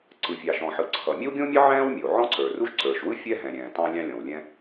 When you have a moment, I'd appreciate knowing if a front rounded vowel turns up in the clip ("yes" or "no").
no